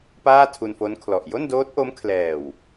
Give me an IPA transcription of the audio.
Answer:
p aː˥˩ tʰ u˧ n f o˦˥ n kʰ l ɔ˨˩ ʔ j o˥˩ n d oː˦˥ t̚ ʔ o˦˥ m kʰ l ɛː˨˩ w

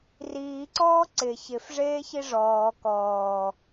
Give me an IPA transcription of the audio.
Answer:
r iː ǀ ɔː ǀ ɪ ç ɪ f ʐ eː ç i ʐ ɔː k ɔː

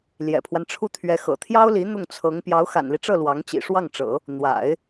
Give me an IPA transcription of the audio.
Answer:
l j ɛ̰˨˩ pʰ w a˦ n ʈ͡ʂʰ u˥˩ t̪ʰ ɥ ɛ˧˥ x ɤ̰˨˩ t̪ʰ j ɑ˥ ʊ̯ l i˧˥ n̪ ʊ˥˩ ŋ t͡sʰ ɤ˧˥ ŋ p j ɑ˧˥ ʊ̯ x a̰˨˩ n l i˦ ʈ͡ʂ ɤ˥˩ l w ɑ˧˥ ŋ t͡ɕ ḭ˨˩ ʂ w ɑ˥˩ ŋ ʈ͡ʂ ɤ̰˨˩˦ | n̪ w a̰˨˩˦ ɪ̯

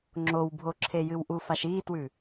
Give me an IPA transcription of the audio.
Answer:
ŋ͡ǁ o w bʱ o ǁʰ e j ɨ w ʔ u f a ʃ iː t w ʉ

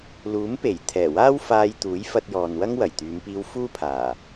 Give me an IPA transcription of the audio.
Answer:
l uː˨˥ m p e˨˩ j t̪ʰ ɛː˨˩ w aː˥ w f aː˧ j t̪ uː˨˥ j f ɐ˧ t̚ j ɔː˨ n w ɐ˥ ŋ w ɐ˨˩ j t̪ yː˨˧ m p iː˧ w f uː˥ pʰ aː˨˩

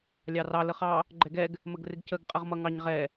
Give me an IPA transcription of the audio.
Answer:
lʲ ɑ r ɑ l ə χ ɑ | ɡ͡ǃ ɛ ɡ ɛ ɡ | m ə ɡ r ɪ ɡ c ə ɡ qʼ ə ʁ m ʌ ŋ ɑ ɲ ʁ ɛ

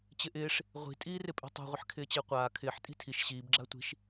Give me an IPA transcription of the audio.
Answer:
t͡ɕ ɪ ʔ ɪː ʂ | ʁʷ i̤ tʼ iː r ɪ pʼ i̤ tˤ ṳ ʁʷ ɪ ħ kʰ ɪː t͡ɕ ɪː qʷ aː kʰ ɪː ħ tʼ i̤ tʰ i ʃ ɕ iː b ɡ͡ǁ a tʷ i̤ ʃ

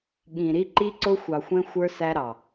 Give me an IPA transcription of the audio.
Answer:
ɠ ĩ˨ ɾ i˦ ǃ i˦ ǀ ʊ˦ xʷ ɑ˨ xʷ ɛ̃˦ xʷ ə˞˦ s æ˦ ɾ ɑ˨

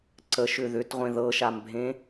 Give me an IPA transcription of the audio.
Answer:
ǀ ə ʃ ʏ ð ʏ t ʁʷ ẽ ð ɤ ʃ a m bʱ ẽ

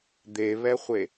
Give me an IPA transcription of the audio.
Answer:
d̪ e β ɛ χʷ e

